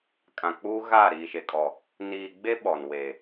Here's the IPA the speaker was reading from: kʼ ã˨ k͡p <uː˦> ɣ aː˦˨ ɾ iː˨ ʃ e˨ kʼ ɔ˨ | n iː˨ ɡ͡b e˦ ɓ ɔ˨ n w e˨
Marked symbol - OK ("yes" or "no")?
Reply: yes